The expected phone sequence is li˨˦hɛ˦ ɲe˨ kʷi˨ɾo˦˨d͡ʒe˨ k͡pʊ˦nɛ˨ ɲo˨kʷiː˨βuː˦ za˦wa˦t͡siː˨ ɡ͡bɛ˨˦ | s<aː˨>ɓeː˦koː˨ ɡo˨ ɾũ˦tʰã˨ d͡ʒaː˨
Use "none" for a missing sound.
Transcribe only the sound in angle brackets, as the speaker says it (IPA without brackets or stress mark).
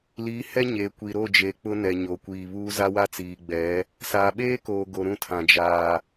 aː˨